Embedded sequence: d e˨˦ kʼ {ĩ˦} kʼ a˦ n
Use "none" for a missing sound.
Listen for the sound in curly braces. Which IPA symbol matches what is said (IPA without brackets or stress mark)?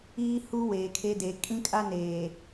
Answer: ĩ˦